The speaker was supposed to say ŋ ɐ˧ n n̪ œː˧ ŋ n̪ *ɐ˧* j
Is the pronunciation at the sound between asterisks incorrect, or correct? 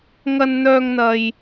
correct